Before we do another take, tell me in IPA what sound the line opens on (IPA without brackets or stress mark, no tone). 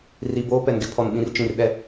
r